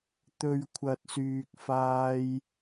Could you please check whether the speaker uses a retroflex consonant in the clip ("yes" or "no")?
no